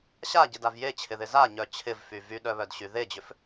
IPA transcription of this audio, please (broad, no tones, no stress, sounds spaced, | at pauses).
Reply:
ɕ a ɟ ɪ d a v j e t͡ɕʰ ɪ ð ɪ z a ɲ œ t͡ɕʰ ɪ v f y v y ɗ œ β œ d ɕ y ð e d͡ʑ ʏ f